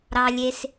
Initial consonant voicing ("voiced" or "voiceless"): voiced